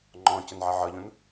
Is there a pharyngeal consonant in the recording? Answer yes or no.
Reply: yes